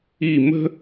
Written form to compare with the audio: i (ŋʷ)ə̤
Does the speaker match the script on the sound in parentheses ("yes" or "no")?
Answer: no